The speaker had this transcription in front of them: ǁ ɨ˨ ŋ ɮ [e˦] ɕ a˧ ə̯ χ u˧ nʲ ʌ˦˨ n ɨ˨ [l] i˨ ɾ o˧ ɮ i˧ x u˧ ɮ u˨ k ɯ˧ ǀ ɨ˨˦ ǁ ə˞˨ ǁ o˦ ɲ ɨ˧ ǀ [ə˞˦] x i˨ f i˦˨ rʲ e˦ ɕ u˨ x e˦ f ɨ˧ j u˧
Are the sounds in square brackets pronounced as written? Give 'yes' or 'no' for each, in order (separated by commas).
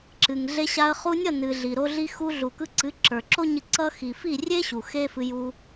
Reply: no, no, no